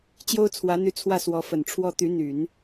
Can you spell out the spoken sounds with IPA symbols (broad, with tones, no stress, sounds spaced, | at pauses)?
t͡ɕ j o˥ ʊ̯ t͡sʰ w ä˧˥ n̪ y˧˥ t͡sʰ w ä˥˩ s w ɔ˧˥ f ə˨˩ n ʈ͡ʂʰ w ɔ˥ t̪ y˧˥ n̪ y˨˩˦ n